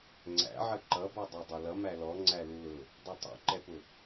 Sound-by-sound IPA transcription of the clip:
ŋ͡ǀ æ̰ ʕ ə ǃ ʌ b ɔ dˤ ɛ dˤ ɛ l ʌ m æ l ɔ ŋ͡ǀ æ l u l ʊ | dˤ ʌ tˤ ṵ ǃ ɛ p ʊ

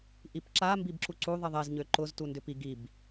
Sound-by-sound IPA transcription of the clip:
ʔ i p ǁ a m b i b ǁ u ǀ u ðˤ i ðˤ e z ɲ ø ǃ ʊ z t u n d ʏ p i ɡ i b

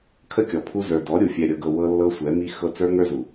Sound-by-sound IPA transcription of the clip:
kʰ ə˦ kʲ ɔ˨ pʰ u˦ z ə˞˨ d ɔ˨˦ ɾʲ u˨ fʲ ɛ˨ ɾʲ ɤ˨ ɡ ɤ˨ w ɤ˦ lː ɤ˦ sʷ ɛ˨˦ m i˦ x ɤ˦ t͡s ə˞˦ ŋ ə˞˦ z u˨

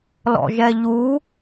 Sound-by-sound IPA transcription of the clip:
l ɔ̰ ʒ ɛ ʎ u

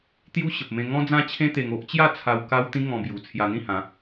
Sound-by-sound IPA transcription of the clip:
t̪ j u˦ ɕ ə˨ p̚ m ẽ˧ ŋ ɔ̃˦ d͡z ã˦ t͡ɕʰ ẽ˦ t̪ e˧ ŋ o˦ ʔ t͡ɕ j a˥˧ t͡sʰ a˧ w k a˦ w t̪ ĩ˦ ŋ ɔ̃˧ b j u˨˩ t͡sʰ j a˧ n̪ ĩ˥˧ h ã˨˦

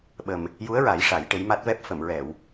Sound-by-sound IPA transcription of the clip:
ɓ ə˨˩ m | j u˧˥ ə̯ ɹ a˨˩˦ j ʂ a˨˩˦ j ʈ e˧˥ j m a˦˥ t̚ v ɛ˦˥ p̚ f ə˨˩˨ m ɹ ɛ˨˩˨ w

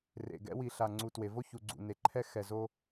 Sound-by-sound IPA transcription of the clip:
r ḛ˨ ɡ ɛ̰˦ w i˨ ɬ a˨ ŋ͡ǀ u˨ t w e˨ v o˦ ç u˨ ɡ͡ǀ ṵ˨ n e˨ ǃʰ ɛ˦ x ɛ˨ z o˦

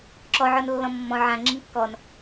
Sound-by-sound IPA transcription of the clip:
ǁ ɔ ʕ ɔ n lː ɔ̃ mː ɔ̃ ʕ ã ŋ͡ǁ ĩ n kː ɔ n

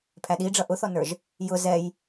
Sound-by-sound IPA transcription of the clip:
pʰ æ ɗ i ɖ͡ʐ ʌ ʔ ʊ θ ɔ n ə˞ ʒ | j ʊ z ɛ j

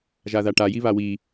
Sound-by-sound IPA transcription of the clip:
ʒ a ð a ʈ a j i β a w i

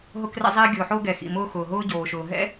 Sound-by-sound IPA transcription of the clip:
ɦ ʊ˧ k r ɛ̰˧ zˤ iː˧ ɡʲ o˩ ħ o˧ ɡ ɛ˩ x ḭ˩ m ʊː˧ x ʊː˩ ɦ ʊː˧ ɟ oː˩ ʃ ʊː˩ ɦ ɛ̰˥

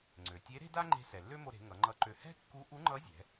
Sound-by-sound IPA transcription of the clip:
ŋ͡ǀ ø˩ tʲ e˧˥ ɾ e̤˥ d a˥ ŋ͡ǃ e̤˧ s ɛ˩ lː ø˥ m o˧ ɾ e̤˩˧ ŋ ʌ˩˧ ŋ͡ǃ ʌ˧ ǃ ø˧ h ɛ̤˥ kː u˧˥ ʔ u˧˥ ŋ͡ǃ ʌ˧˥ zʲ ɛ̤˩˧

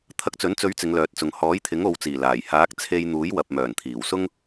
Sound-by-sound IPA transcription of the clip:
t̪ʰ ɐ˧ k̚ t͡s ɵ˨˥ n t͡s ɵ˨˧ ɥ t͡s ɪ˨˧ ŋ l œː˨˥ t̚ t͡s ʊ˨ ŋ h ɔː˨˥ j t̪ʰ ɪ˨˥ ŋ o˨˧ w t͡s iː˨˩ l aː˨˩ j h aː˨˥ k̚ t͡sʰ e˧ j n̪ uː˨˥ j w ɐ˨ p̚ m œː˨˩ n t̪ʰ iː˨˩ w s ʊ˥ ŋ

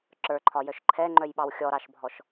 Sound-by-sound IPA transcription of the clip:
ǁ ə˞ ǃʰ ɒ j œ ʃ ǃʰ ɛ ŋ͡ǃ œ j ɓ ɑ w xʲ ɔ ɾ ɑ ʃ bʱ ɔ ʃ

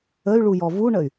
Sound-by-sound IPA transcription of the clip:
ə y̯ ɭ u j ɔ v u ɳ ə y̯

